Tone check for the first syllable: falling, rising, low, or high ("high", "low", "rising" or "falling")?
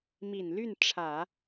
low